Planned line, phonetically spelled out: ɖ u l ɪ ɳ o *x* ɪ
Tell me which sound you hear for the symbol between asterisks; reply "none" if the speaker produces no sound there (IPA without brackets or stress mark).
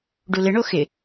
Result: x